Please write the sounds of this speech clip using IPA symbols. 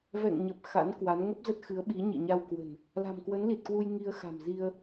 vɛ̰˧˨ŋɲə˨˩p̚ xa̰˧˥nkwa˨˦n ŋə˦˥p̚zə˦˥t̚xɨ˨˦ə̯ɓi˨˦ ɲḭ˧˨ɲa˧wkwə̤˨˩n | la̤˨˩mkwə˨˦nli˨˩t̚kwu˧j ŋi˧ə̯xa̤˨˩mzi˧ə̯

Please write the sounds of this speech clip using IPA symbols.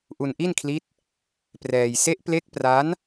ʔu˧nʔi˥˩nkʰli˦˥t̚ | prɛː˧j se˦˥ʔple˦˥k̚pra˦˥n

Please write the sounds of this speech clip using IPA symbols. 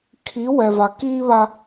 kʰi˨˦ wɛ˨va˨ kiː˦βa˦

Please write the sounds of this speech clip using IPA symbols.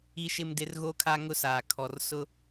i˦ʃɪ˦mdɪ˦r ɣo˦kʰa˦ŋʊ˦saː˨ kʰɔ˨rsʊ˦

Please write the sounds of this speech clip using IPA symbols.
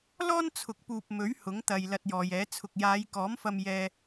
lɔː˥nt͡sʰʊ˨˥k̚puː˨p̚ mɵ˨˥ɥ hʊ˨˥ŋt̪ɐ˨j lɐ˧t̚jɔː˨jɛː˨˥ t͡sʰʊ˨k̚jaː˨˧jkɔː˨˥mfɐ˧m jɛː˧

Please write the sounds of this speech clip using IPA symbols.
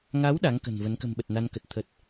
ŋa˨˦w ɗa˨˦ŋ kə̤˨˩nvə˨˦n kə̤˨˩mɓə˨˩t̚na˧nkə˨˩t̚ t̪ʰə˨˩t̚

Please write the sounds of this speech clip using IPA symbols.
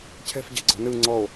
cʰɛ̤fɟɛ̤ɡ͡ǀɔ̤ nɯ ŋ͡ǀɔo̯

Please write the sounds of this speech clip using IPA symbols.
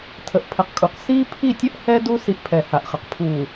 tʰə˨ʔpʰə˨˦qkʼu˨q siː˦pʰi˦˨tʲə˦ʔ hɛ˦ du˦ si˦ʔpʰɛ˨ha˨ʔχə˨q pʰuː˨

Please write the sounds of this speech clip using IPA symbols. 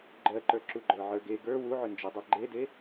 ɡ͡ǃɜǃə˞ ǁuɡ͡ǃə˞ʕə˞ɡe ɡə˞ wuʕʏnd͡ʒedˤɜ ɡ͡ǃede

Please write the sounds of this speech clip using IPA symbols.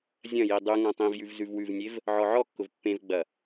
zʲɐ̃ji dˤʉ ŋãtˤĩvjʉv zʉvwʉvnʲev | ʕɔʕɔkːʊv pːẽvɡ͡bɐ

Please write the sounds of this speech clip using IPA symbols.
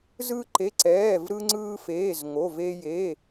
zɯ˧ǃe˩˧˩ ǀɛː˩˧˩vɾɯ˧ŋ͡ǀɯː˧feː˩˧˩z ŋo˩˧˩ve˧ je˩˧˩

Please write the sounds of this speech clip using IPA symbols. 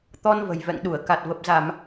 t̪ɔ˧nvə̤˨˩j vɛ̰˧˨ŋɗu˧˩ə̯ ka˨˩t̚və˨˩p̚za˧˩˨m

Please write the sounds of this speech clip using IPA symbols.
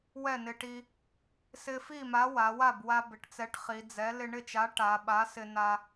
wɛ˥˩nɪ˧ʈi˧ | sɪ˧fi˥˩ma˨˥ wa˩˧wa˥˩b wa˧bɪ˩˧ʈt͡sɛ˨˥ʈχi˩˧ d͡zɛ˨˥ lɪ˧ɳɪ˥˩t͡ʃa˨˥ ʈa˩˧ ɓa˨˥sɪ˧ na˧

